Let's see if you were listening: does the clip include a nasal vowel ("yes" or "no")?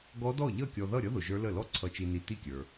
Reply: no